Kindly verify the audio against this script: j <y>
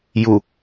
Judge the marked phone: incorrect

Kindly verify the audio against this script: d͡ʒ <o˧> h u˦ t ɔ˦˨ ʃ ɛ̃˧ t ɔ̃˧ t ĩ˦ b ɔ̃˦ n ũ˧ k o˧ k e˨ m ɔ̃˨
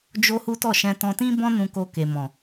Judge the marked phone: incorrect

